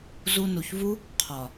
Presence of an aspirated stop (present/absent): present